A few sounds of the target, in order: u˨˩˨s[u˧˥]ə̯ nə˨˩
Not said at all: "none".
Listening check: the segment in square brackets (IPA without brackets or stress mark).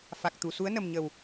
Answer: u˧˥